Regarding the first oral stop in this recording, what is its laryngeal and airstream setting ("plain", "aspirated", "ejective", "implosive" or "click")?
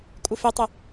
ejective